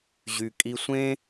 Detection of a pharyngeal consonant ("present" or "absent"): absent